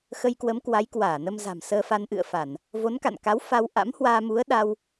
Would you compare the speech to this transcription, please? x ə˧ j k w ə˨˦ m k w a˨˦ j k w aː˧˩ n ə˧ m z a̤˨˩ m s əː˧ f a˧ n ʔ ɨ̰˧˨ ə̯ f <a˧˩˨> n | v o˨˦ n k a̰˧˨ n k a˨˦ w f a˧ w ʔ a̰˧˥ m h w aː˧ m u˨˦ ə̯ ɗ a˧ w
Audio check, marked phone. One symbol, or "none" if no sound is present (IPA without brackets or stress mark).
a˧˩˨